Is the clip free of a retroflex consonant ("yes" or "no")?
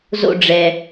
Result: no